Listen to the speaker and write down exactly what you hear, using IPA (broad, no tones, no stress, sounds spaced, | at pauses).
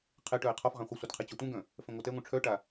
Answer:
qʰ e ʈ œ ɪ̯ qʰ ɔ f ʁ ã χʷ ɐ sʷ ɪ d qʰ e t͡ɕ ɔ tʷ ɛ̃ ɡ œ̃ | f ɛ̃ ŋʷ a t ɛ ŋʷ œ̃ ʈ͡ʂʰ œ ʈ a